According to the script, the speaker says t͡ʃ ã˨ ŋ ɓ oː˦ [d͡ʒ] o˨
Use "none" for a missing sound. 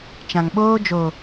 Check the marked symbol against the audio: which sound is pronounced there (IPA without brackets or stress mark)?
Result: d͡ʒ